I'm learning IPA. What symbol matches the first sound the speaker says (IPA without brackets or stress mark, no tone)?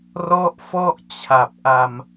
r